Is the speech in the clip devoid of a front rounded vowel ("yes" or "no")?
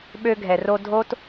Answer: no